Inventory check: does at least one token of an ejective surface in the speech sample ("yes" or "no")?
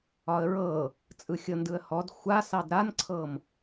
yes